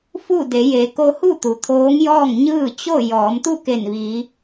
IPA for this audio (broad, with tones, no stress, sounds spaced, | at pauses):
f u˥˨ d e˩˧ j e˩˧ k o˧ h u˥˨ t̪ u˩ t̪ʰ oː˧˥ ŋ j ɔː˥˨ ŋ ɲ ɯː˥˨ t͡ɕ o˥˨ j ɔː˩˧ m t̪ u˥˨ k e˧˩ n ʋ iː˩˧